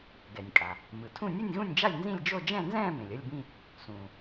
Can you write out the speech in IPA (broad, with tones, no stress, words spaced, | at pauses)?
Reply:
ɡɛ˩nʲkʼa˩ | mɯ˩tʰũ˥˧ nʲɯ˥˧nʲɣũ˥˧nʲd͡ʒa˥˧lʲ nzĩ˥˧lʲd͡ʒo˥˧ d͡ʒɛ̃˥˧nzɛ̃ː˥˧ mẽ˩lʲʌ˥˧lʲbĩ˥˧ | sũː˩